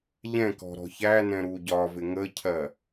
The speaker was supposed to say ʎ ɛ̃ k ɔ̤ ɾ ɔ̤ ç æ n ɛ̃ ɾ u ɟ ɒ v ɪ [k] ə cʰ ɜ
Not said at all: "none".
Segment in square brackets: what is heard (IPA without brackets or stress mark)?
ŋ